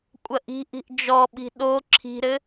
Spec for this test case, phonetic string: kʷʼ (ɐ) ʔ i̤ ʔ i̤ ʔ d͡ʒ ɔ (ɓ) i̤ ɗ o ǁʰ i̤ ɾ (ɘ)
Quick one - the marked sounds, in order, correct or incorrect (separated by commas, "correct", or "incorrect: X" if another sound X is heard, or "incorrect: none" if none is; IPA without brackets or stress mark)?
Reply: correct, correct, correct